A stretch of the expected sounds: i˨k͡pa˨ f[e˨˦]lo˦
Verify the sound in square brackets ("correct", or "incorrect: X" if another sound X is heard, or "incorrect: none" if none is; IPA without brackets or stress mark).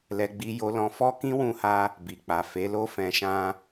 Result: correct